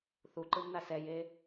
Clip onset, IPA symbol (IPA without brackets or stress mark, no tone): θ